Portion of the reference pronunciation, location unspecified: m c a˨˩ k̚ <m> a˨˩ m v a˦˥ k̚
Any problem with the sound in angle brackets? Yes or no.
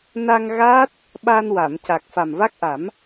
yes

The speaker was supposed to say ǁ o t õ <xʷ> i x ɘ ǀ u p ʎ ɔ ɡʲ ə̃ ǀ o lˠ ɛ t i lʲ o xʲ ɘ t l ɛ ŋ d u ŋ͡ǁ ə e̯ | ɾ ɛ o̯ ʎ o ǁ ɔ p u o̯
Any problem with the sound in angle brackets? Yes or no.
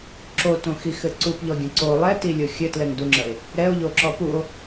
yes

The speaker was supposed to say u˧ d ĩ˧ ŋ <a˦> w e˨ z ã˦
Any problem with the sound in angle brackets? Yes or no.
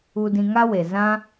no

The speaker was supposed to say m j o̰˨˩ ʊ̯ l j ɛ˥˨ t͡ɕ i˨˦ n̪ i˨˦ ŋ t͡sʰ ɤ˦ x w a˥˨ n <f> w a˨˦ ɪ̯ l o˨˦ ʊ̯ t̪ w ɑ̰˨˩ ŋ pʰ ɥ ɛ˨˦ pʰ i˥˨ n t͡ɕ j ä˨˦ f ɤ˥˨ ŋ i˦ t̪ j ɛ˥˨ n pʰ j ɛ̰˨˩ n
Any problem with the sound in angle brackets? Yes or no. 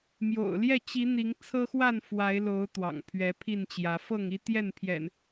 no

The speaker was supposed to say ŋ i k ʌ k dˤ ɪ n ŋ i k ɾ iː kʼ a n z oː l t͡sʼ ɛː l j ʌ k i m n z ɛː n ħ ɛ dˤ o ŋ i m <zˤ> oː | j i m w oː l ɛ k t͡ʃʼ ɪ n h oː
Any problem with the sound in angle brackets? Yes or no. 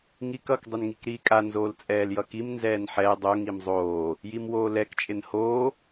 no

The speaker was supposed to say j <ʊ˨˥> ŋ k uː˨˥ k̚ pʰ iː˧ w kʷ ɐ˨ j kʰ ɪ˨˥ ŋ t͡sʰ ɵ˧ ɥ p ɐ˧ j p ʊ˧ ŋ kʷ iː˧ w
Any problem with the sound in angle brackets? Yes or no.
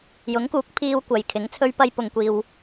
no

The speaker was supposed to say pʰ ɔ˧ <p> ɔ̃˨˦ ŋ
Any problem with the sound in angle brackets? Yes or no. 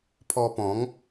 no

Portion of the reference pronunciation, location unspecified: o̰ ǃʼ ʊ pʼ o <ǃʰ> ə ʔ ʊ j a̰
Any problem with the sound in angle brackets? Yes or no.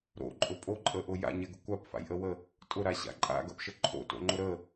yes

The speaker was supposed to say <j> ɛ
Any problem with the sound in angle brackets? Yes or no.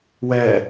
yes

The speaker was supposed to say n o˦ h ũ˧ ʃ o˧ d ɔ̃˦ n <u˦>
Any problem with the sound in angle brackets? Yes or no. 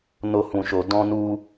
no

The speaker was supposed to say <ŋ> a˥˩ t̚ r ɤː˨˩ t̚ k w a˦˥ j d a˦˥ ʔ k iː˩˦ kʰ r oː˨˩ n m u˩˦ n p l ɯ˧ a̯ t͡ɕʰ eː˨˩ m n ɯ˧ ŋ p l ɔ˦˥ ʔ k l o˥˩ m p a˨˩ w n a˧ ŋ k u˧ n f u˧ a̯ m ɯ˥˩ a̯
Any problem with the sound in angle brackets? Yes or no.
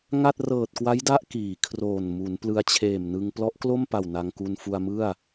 no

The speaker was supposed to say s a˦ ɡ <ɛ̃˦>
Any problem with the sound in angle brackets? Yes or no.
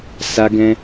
no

